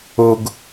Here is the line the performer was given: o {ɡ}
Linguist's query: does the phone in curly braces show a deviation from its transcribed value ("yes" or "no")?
no